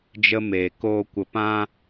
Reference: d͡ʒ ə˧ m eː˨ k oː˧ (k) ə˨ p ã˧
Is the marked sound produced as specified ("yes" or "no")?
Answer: no